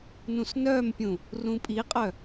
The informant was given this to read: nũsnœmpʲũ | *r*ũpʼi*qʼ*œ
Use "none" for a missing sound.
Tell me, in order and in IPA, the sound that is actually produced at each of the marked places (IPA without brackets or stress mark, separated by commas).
r, qʼ